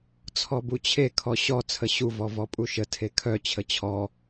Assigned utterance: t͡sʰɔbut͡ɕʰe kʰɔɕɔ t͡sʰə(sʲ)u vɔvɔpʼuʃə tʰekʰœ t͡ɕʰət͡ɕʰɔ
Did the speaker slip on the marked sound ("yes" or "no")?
yes